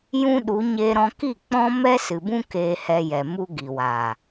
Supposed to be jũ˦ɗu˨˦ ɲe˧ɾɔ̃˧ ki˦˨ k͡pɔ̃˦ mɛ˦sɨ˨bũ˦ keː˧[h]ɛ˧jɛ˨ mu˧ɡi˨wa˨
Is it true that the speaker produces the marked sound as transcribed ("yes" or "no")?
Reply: yes